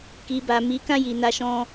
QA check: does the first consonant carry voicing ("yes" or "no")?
no